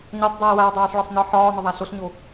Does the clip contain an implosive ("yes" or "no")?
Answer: no